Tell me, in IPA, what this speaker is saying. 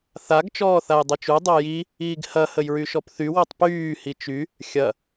θaɡ t͡ʃɔːθajdˤyt͡ʃu dˤoji | iːɡhɐ həjɹyʃɔpθy wotˤpyː hit͡ʃy | xʲɐ

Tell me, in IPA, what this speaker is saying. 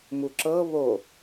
muǁɤ βo

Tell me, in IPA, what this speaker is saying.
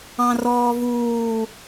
ɑ̃rɔːvuː

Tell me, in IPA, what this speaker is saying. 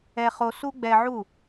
ɛ˧χo˧su˦ ɡ͡bɛ˧ʕu˦˨

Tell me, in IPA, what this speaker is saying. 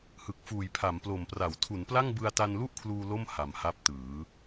hɯ˨˩k̚fuː˨˩j pʰa˩˦mplo˨˩mpra˩˦w tʰu˩˦npla˥˩ŋ bɯ˧a̯ta˧nlu˥˩ʔkʰluː˧ lo˥˩m ha˨˩mha˦˥p̚ tɯː˩˦

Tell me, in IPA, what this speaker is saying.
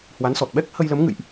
hwa˨˦nsɔ˨˩t̚ ɓɛ˦˥k̚ hə˧jlə˨˦mŋɨ̰˧˨jʔ

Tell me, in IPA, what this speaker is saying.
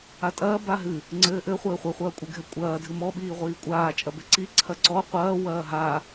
atʼɐː baɦɨ | ŋ͡ǀɘːʔɘχʷɘː χʷɛχʷɐːkʷʼɨɡʱɛ kʷʼɐː dʱɨmɔɓiːʁʷiː kʷʼaːt͡ʃʼɐbɘ ǀiǀʰɐ ǀɔ qʷɐː wɐːɦa

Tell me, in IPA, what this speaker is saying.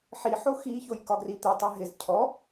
ħiħo xiçoj kɒɡrit̪itˤɛ ɦɪz cʰɔ

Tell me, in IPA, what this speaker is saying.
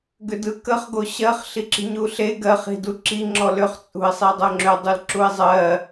ɡʏdɯkəχ ɡoɕɜχ ɬiǁi̤ɲuɬe ɡɜχ i̤duǁi ŋ͡ǁɔlʏχ t͡sʼṳɪ̯sˤidˤoŋ͡ǁʏ dˤulǁuɪ̯zˤɜ

